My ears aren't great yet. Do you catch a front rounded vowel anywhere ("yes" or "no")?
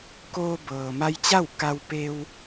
no